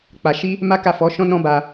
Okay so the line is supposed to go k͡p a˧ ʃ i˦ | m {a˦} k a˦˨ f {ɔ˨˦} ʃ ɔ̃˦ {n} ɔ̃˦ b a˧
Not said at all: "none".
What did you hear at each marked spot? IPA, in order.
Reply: a˦, ɔ˨˦, n

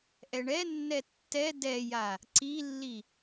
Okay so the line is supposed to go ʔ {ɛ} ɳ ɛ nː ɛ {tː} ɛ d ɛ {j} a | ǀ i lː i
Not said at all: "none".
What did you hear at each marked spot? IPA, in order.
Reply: ɛ, tː, j

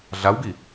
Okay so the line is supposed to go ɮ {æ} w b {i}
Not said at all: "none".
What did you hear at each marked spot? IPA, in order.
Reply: a, i

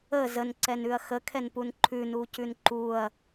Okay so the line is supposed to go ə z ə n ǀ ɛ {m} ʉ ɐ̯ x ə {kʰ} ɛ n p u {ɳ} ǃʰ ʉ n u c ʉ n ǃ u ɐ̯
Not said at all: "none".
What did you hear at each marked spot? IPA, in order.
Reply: n, kʰ, n

